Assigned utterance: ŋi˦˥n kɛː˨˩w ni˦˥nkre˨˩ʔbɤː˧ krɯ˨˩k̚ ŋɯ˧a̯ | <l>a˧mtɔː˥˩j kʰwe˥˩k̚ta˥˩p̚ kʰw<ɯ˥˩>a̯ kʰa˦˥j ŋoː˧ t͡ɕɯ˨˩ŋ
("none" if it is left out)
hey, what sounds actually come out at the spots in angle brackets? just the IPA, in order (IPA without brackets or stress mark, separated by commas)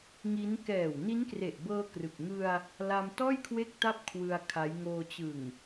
l, ɯ˧